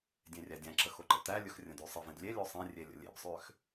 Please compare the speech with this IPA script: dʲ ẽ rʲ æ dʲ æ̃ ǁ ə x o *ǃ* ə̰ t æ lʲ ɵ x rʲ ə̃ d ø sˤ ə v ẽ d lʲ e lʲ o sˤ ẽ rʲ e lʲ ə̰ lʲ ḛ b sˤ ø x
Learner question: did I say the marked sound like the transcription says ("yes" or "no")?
yes